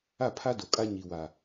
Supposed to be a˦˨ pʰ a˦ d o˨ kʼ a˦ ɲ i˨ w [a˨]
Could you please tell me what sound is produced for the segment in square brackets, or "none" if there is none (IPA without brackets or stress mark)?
a˨